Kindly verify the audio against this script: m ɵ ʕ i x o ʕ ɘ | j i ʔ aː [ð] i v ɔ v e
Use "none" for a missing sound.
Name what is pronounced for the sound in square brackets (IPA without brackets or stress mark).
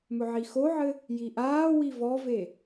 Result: w